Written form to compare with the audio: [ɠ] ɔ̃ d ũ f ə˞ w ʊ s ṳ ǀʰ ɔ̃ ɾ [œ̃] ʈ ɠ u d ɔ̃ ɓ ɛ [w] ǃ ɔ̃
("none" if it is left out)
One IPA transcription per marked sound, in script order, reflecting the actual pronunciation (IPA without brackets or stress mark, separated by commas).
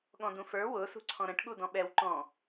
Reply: ɠ, ə̃, w